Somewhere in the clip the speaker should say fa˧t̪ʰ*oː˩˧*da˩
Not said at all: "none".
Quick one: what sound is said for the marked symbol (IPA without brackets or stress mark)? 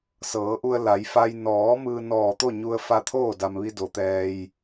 oː˥˨